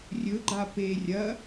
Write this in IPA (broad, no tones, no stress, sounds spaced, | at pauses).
rʲ ɵ ɡ͡ǃ a p e rʲ ɐ